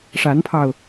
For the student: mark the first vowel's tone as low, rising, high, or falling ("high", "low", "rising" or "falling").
rising